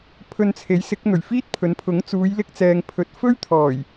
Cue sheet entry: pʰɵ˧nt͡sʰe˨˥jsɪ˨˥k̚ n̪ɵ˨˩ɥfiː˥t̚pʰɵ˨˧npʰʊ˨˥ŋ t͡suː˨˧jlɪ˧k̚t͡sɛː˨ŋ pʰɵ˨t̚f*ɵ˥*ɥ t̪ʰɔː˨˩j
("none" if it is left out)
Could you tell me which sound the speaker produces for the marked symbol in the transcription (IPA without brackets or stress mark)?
ɵ˥